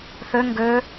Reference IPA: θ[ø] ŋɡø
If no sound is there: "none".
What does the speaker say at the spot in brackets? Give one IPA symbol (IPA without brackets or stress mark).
ø